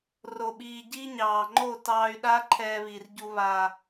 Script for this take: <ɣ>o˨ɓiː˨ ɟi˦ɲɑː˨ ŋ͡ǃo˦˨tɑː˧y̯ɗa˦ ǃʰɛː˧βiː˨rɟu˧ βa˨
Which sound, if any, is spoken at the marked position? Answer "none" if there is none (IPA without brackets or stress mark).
r